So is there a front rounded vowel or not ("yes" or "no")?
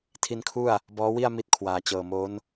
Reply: no